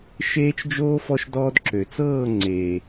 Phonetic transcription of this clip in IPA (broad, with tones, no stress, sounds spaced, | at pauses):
ʃ eː˧ t͡ʃ d͡ʒ oː˧ f ɔ˧ ʃ d ɔː˧ d ǁ ø˨ t͡s ɤː˦˨ ŋ͡ǀ eː˨